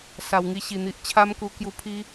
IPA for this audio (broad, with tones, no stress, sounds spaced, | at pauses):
s a˨˩ w ŋ i˥˧ ɕ i˨˩ n̪ i˨ ʔ t͡ɕʰ a˦ m k u˧ k j u˧ pʰ i˦